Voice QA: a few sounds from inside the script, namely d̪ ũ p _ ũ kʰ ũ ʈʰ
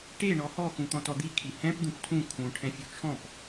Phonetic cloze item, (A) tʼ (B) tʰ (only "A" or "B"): B